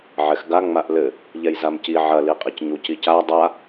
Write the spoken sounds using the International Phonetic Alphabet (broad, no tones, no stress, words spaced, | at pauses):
ʕɛxɡa ŋ͡maʔlɘ | ʎɛjzamci ʕɐ liqʼicɲuc ica dˤa